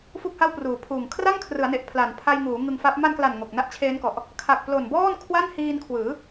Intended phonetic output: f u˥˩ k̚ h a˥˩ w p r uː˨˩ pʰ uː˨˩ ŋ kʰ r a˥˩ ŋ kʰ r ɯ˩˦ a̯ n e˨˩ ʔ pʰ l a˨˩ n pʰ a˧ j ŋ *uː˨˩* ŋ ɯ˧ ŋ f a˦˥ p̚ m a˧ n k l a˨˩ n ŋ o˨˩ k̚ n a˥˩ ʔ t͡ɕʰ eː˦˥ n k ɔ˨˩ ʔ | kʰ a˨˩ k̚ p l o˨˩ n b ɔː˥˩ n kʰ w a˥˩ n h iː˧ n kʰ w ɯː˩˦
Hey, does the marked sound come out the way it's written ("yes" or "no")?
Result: no